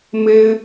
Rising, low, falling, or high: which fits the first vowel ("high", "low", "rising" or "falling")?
high